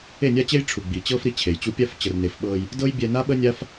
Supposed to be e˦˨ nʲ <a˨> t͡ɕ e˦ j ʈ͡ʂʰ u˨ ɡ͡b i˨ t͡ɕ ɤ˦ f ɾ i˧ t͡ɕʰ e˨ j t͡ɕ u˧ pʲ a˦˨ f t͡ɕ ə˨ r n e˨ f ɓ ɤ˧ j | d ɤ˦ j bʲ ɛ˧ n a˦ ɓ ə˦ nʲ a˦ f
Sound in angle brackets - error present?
yes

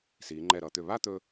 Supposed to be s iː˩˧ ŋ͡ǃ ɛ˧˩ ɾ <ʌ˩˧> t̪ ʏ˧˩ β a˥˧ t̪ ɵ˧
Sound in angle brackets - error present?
no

